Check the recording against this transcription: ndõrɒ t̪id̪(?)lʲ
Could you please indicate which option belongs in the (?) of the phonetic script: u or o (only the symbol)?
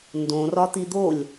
o